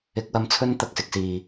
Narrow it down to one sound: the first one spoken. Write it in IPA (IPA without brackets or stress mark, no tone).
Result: ɪ